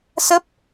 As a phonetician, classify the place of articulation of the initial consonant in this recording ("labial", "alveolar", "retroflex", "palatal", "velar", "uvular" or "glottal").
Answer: alveolar